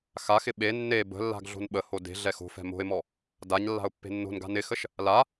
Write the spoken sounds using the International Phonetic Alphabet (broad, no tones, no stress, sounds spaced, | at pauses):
x a x ɪ ɓ e nː e b ə̤ lː a̤ ɡ ɮ o̤ n ɓ ə h o d e̤ ɮ ɛ x o̤ f ɛ̤ m o̤ ɪ̯ m ɔ | d a ɲ lː a̤ ʊ̯ pː e̤ nː o̤ n ɡ a̤ n ɪ x ə ʃ | l a